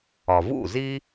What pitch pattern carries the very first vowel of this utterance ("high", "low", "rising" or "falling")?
low